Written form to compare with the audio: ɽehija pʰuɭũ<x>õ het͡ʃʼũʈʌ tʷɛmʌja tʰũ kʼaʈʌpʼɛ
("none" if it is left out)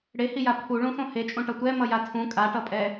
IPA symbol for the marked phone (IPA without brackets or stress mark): x